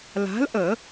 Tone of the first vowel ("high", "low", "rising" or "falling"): rising